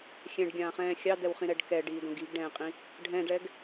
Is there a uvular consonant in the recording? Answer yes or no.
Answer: yes